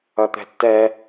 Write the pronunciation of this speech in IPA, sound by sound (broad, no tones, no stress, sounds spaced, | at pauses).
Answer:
ʌ t̪ ɛ̤ tː ɛ